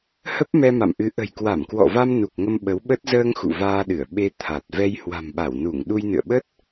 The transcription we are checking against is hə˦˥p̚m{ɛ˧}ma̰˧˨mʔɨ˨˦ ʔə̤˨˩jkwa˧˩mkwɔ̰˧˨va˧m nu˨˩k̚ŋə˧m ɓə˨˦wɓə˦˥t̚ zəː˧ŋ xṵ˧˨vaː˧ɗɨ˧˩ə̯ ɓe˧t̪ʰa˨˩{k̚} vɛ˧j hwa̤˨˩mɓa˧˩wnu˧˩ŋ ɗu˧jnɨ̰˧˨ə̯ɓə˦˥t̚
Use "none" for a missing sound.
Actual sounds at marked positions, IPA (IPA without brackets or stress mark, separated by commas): ɛ˧, t̚